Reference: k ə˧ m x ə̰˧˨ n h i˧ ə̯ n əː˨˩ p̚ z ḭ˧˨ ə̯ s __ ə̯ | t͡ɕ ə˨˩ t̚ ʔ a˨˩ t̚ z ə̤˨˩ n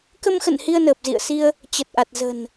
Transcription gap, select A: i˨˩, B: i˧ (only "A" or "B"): B